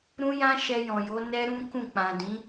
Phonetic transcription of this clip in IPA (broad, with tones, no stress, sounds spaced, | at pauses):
ɾ ũ˦ j ã˦ ʃ ɛ˧ j ɔ̃˨ j o˨˦ n ɛ˦ ɾ ũ˦ k ũ˦˨ k͡p ã˨ d ĩ˨˦